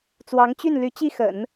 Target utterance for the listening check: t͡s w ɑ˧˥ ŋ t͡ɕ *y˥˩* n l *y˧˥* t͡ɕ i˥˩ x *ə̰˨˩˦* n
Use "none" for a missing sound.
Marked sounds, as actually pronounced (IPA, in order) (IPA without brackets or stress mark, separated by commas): y˥˩, y˧˥, ə̰˨˩˦